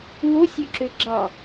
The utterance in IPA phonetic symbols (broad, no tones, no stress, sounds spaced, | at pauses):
w o sʲ ø ǁ ø ɡ͡ǁ ɑ